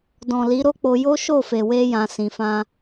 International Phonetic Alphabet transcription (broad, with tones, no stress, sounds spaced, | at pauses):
d ɔ̃˨ l i˨˦ ɾ o˦ k͡p o˧ j o˦ ʃ o˦˨ f e˨ w e˧ j ã˨ s ĩ˨ f ã˧